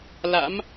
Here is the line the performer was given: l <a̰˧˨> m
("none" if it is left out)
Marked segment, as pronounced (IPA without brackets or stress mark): a̰˧˥